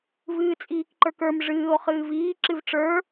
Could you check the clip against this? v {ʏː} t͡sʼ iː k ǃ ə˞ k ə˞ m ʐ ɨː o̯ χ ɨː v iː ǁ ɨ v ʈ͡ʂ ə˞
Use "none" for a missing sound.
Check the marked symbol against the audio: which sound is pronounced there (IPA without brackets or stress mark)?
ɨː